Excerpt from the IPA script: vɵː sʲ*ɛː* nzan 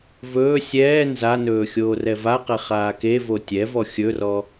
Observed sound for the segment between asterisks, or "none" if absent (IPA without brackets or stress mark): ɛː